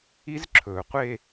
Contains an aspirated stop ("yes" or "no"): yes